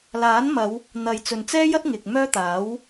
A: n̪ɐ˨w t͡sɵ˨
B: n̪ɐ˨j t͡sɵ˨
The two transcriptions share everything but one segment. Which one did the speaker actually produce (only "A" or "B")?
B